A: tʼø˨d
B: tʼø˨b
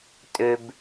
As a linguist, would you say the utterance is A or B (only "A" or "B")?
B